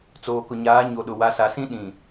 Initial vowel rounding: rounded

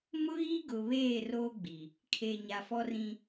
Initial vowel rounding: rounded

